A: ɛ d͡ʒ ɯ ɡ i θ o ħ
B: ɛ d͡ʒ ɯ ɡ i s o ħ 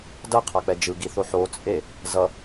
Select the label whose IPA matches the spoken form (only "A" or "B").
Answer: A